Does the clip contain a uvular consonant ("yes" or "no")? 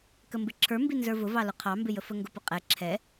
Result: yes